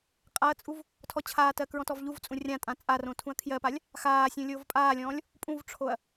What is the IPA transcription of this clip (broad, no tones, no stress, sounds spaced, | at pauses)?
qʼ a ɐ̯ t͡sʼ u v | tʰ ɔ t͡ɕʰ aː t ɜ k ɹ ɔ̃ t ɔ v ʎ u v t͡sʼ ũ rʲ ã tʼ ã t͡sʼ a r õ tʰ ũ ɐ̯ kʰ j ɜ p a lʲ | x aː sʲ ũ lʲ oː v pʼ aː lʲ ɔ̃ː lʲ | pʼ ũ v ʈ͡ʂʰ o ɐ̯